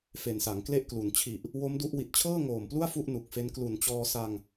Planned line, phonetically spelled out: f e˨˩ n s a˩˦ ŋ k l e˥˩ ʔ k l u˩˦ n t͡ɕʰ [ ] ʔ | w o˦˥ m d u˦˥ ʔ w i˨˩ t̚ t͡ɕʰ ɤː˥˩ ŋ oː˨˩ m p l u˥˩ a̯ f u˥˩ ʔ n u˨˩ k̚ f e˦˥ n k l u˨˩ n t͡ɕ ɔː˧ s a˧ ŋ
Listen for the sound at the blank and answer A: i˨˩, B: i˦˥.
A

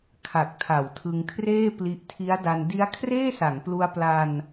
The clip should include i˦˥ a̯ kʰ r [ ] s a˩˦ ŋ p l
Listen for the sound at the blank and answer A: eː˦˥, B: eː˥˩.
B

